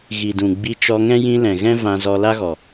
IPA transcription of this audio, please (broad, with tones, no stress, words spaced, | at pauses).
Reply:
ɣi˨dũ˨ ɡ͡bi˧t͡ʃɔ˧ŋɛ̃˦ jĩ˧ lɛ̃˨ɣɛ̃˦ vã˧zɔ˧ la˦ɣɔ˨